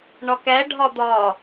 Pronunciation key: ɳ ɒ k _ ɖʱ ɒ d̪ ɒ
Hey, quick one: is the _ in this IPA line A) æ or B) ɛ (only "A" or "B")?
A